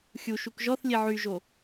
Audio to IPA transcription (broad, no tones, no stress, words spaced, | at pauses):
xʲu ʃukʒɔθlʲe ʕyʒo